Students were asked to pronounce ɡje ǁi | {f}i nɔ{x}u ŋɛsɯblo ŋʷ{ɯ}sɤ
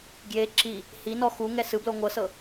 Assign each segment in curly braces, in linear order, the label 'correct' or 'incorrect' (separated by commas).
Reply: incorrect, correct, incorrect